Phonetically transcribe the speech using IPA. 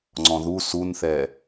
ŋ͡ǀ ɔ̃ ð u s u n θ ɛ

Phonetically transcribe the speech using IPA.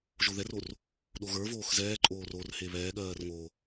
ʒ o ð ɛ r o r | ɗ o ɣ ə˞ v oː x z ɛː ǃʼ oː r o r h e β ɛː ɠ ɜː r ŋ o

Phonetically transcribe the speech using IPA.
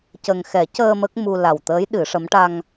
c ə˨˩ ŋ x ɛ˨˩˦ c əː˧ m ə˦˥ k̚ m u˧ l a˨˩ w t̪ əː˧˥ j ɗ ɨ˨˩˦ ʂ ə˧˥ m ʈ a˧ ŋ

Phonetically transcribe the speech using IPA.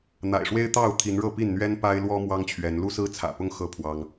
n̪ a̰˨˩ ɪ̯ ʂ w e˦ ɪ̯ t̪ ɑ˥˨ ʊ̯ t̪ʰ i˨˦ n ɻ ɤ˥˨ p i˥˨ n n̪ ɥ ɛ˦ n p a˦ ɪ̯ l w ɔ˦ m w ɑ˦ ŋ t͡ɕʰ ɥ ɛ˨˦ n l u˦ s ɹ̩˦ t͡sʰ ä̰˨˩ p ʊ˦ ŋ x ɤ˥˨ pʰ w ɑ˦ ŋ

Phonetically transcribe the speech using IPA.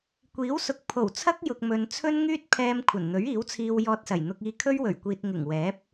kʷ iː˨˥ w s ʊ˨ k̚ pʰ o˨˩ w t͡sʰ ɐ˥ k̚ j ʊ˨ k̚ m ɵ˨ n t͡sʰ ɵ˥ n ŋ yː˥ t̚ pʰ ɛː˧ m kʷʰ ɐ˨˩ n n̪ ɵ˨˥ ɥ iː˨˥ w t͡sʰ iː˧ w j ɔː˧ t̚ s ɐ˨˩ j n̪ ʊ˧ k̚ iː˧ kʰ ɵ˥ ɥ w ɵ˨˩ ɥ kʷ iː˨ t̚ ŋ ɪ˨˩ ŋ w ɛː˨˥ p̚

